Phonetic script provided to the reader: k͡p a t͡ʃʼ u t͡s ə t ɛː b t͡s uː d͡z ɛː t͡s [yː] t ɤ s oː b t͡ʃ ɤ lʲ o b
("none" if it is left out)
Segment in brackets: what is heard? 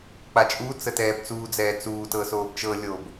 uː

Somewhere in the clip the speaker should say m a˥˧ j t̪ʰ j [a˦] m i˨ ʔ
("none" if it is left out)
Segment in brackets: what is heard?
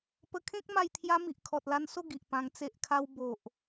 a˦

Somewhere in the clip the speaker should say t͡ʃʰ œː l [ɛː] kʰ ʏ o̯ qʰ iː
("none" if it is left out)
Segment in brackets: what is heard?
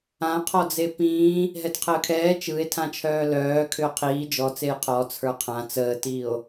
œː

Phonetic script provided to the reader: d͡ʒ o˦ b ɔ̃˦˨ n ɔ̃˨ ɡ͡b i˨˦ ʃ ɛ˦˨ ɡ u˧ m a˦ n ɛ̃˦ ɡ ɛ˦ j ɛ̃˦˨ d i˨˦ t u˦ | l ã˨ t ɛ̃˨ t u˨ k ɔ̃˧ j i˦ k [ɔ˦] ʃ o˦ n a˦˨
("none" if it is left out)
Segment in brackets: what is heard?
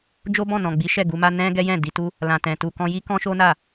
ɔ̃˦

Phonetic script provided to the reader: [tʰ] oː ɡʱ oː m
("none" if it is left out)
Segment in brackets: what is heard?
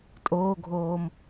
tʼ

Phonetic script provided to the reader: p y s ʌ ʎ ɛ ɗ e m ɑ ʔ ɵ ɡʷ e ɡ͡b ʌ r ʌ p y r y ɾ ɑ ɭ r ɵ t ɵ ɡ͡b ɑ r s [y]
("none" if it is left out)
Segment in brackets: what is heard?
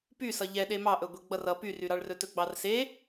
e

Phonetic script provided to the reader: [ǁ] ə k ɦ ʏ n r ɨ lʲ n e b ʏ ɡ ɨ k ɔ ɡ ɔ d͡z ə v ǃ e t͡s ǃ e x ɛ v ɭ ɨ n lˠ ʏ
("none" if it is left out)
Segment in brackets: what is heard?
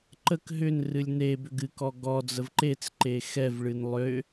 ǃ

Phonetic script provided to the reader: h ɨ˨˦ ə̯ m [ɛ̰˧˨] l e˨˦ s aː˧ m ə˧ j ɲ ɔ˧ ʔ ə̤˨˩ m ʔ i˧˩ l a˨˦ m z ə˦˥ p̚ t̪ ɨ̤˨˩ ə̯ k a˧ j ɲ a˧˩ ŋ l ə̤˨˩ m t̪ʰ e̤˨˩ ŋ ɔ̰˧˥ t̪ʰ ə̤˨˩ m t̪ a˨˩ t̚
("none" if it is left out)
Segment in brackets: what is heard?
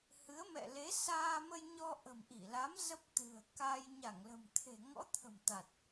ɛ̰˧˨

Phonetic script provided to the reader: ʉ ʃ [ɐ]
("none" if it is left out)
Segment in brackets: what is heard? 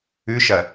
ɐ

